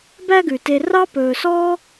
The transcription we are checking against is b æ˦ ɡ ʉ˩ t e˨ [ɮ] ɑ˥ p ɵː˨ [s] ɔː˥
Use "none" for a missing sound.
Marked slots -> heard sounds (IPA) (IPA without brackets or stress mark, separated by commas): r, s